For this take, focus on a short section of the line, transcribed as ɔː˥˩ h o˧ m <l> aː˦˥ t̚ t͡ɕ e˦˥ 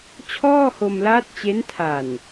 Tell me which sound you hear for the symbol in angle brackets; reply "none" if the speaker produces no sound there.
l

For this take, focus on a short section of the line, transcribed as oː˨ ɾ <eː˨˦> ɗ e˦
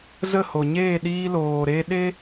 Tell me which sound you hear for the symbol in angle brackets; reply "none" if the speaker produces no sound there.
eː˧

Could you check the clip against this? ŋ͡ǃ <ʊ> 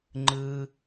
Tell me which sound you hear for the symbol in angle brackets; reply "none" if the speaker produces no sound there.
ɯ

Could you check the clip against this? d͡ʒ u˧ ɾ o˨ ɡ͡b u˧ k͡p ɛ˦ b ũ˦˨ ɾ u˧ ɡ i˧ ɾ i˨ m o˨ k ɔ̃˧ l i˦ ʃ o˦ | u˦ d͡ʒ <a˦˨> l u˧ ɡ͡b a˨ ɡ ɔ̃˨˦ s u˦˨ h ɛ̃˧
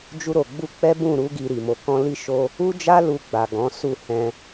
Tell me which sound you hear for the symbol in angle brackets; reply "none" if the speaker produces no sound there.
a˦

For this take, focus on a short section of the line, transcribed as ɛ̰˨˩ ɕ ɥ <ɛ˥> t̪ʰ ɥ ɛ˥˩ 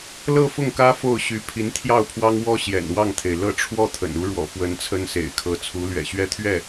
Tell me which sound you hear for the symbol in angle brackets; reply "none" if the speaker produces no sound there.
ɛ˥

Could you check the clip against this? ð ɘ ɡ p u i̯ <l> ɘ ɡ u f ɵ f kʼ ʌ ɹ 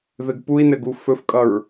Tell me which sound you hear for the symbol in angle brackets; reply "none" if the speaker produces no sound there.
n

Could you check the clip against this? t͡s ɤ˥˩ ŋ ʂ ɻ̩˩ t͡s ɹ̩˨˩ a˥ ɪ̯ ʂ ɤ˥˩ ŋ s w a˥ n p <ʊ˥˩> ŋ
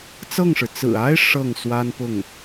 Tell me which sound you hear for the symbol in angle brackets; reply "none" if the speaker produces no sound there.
ʊ˥˩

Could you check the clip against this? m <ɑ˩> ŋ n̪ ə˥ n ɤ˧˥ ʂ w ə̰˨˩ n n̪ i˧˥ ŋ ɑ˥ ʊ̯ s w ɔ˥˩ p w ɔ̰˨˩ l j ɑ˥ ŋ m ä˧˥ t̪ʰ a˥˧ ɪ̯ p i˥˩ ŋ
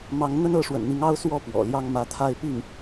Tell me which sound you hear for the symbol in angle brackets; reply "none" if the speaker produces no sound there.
ɑ˧˥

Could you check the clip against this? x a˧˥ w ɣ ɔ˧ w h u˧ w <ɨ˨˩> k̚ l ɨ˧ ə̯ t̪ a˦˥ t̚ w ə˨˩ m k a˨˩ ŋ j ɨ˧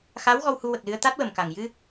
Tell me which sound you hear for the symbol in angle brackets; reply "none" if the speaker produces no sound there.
ə˨˩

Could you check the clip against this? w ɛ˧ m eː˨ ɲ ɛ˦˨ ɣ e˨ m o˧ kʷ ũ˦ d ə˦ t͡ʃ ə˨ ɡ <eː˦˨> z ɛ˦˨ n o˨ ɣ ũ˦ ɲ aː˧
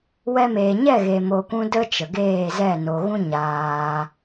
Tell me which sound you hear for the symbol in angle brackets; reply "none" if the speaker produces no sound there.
eː˦˨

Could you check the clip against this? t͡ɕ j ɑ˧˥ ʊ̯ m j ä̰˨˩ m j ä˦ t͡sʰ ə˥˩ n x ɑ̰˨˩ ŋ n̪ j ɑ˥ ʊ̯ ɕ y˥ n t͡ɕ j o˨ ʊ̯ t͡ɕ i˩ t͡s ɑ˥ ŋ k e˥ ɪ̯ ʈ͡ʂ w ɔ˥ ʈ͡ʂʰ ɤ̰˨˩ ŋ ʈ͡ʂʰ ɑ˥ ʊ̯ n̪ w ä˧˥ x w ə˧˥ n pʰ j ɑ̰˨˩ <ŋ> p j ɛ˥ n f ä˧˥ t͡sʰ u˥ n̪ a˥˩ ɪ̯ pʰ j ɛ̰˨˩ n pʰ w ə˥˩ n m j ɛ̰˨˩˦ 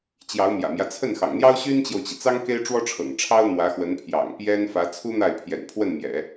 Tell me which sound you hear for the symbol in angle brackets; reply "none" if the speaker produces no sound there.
ŋ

